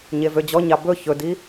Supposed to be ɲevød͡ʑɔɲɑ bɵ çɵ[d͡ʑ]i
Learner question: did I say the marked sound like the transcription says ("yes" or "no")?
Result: no